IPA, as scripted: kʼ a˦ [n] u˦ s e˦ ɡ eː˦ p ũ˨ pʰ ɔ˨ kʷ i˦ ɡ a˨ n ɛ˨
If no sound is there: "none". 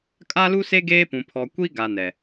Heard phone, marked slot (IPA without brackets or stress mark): l